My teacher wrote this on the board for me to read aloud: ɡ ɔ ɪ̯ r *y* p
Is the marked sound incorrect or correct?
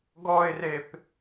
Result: incorrect